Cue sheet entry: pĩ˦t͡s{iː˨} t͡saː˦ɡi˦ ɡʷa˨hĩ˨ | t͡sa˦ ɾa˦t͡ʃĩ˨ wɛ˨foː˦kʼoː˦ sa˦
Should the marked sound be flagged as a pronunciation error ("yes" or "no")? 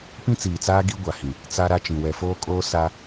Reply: no